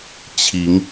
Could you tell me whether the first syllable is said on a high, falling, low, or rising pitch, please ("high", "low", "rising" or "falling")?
rising